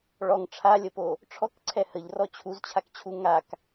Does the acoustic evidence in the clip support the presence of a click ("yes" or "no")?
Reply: yes